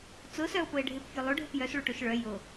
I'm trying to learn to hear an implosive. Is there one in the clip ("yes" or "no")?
no